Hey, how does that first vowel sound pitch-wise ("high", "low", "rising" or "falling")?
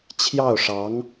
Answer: falling